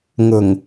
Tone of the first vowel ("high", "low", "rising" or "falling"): low